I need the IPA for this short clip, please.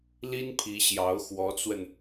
li˥npʰi˧˥ɕjɑ˧˥ʊ̯ xwɔ˧˥t͡swə˧n

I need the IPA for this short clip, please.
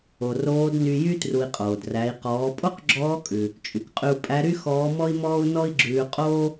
o˩roː˧˥dny˧jy˥ tru˧i̯qʼoː˩d ræ˩˧i̯ qɔː˩˧pʼo˥qɡ͡ǁɔː˧˥kʼʉ˩ | t͡ʃʼy˩kqʼʉ˧u̯pʼæ˧˥ ɾy˥ xɔː˧˥mɔ˥i̯mɔː˥u̯ nɔ˥i̯ɡ͡ǁʉː˧qʼoː˥

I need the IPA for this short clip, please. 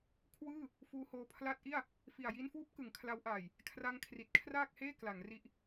kʰwɯː˥˩ | fuː˧hoː˧ pʰla˦˥t̚ʔi˥˩a̯ | fi˨˩a̯ji˧nfuː˦˥p̚ kɯ˩˦ŋkʰla˦˥wʔaː˨˩j | kʰra˧ŋkʰri˨˩t̚ kʰraː˥˩k̚heː˥˩ kla˩˦ŋri˦˥ʔ

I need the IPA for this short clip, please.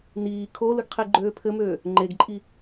niː kʰolɯɡ qʰiɡ͡ǃøːpʰɘmøː | ŋ͡ǃeɡǃʼi

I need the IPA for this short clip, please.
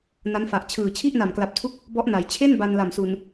na˦˥nfa˨˩ʔ t͡ɕʰɯː˨˩ t͡ɕʰi˥˩ʔna˨˩mkla˨˩p̚tʰu˦˥k̚ | bɔ˦˥ʔna˩˦j t͡ɕʰe˥˩n ba˧nla˨˩msu˨˩n

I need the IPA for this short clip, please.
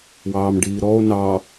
wɑːmɖiːɾɔo̯ nɑ

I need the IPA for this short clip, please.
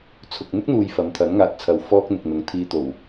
t͡sʰʊ˧k̚ n̪ɪ˥k̚n̪uː˨j fɐ˨˧mt̪ʰɐ˨˥nŋaː˨t̚t͡sʰɐ˨w fɔː˥k̚n̪ɪ˨k̚n̪ʊ˨˧ŋ t̪ʰiː˧t̪o˨˩w

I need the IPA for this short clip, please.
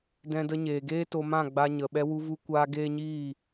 dɛ̃˧də˧ɲeː˨ɡeː˦ to˧mã˦˨ɡ͡ba˧ɲə˨ ɓɛ˧wu˧vu˧kʷaː˧ ɡeː˦ɲiː˦˨

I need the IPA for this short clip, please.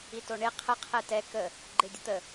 itoɳe qʰə qʰɛtɛ kə | ɡ͡ǃedʲət̪ə

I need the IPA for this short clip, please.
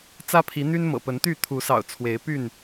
t͡sä˦pʰi˨˦ n̪y˦nmɤ̰˨˩pə˨˦nt̪y˥˨ t̪ʰu˨˦sɑ̰˨˩ʊ̯ t͡sʰwe˨˦ɪ̯py˥˨n

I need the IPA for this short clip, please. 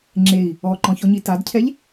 ŋ͡ǁei̯ | ɔǃɔ̃çɔɲi tadcʰɛʎ

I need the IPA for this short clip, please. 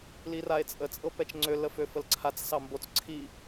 lirae̯t͡sʼə t͡sʼɤpɛt͡ʃŋ͡ǀø ləføfəlǀʰat͡s sɑmbot͡s ǀʰi

